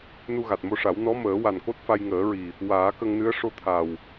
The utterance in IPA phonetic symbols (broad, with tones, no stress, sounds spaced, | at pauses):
n u˧ ɣ a˨˩ t̚ m o˧ ʂ a˨˩˦ w n ɔ˧˥ m əː˨˩˦ w a˨˩ n k o˦˥ t̚ f a˧ j ŋ əː˨˩˦ ɹ i˨˩ | w aː˨˩˦ k ə˧ ŋ n ɨ˧˥ ə̯ ʂ o˧˥ t̪ʰ a˨˩ w